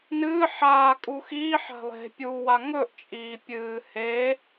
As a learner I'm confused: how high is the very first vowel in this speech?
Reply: high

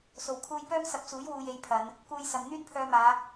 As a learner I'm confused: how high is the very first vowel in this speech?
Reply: mid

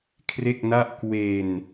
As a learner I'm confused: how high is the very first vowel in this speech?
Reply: mid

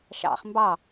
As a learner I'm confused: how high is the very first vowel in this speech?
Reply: low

